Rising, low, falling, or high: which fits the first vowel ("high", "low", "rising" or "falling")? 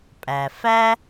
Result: low